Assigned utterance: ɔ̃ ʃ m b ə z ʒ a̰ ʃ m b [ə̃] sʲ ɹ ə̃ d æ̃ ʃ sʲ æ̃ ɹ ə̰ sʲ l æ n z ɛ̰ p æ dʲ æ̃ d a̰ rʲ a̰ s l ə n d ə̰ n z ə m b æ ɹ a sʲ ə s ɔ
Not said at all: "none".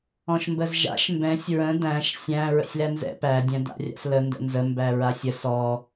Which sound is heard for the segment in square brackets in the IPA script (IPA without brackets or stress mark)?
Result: ɛ̃